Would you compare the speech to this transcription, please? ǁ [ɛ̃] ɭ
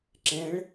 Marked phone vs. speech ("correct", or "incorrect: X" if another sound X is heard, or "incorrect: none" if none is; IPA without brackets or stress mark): correct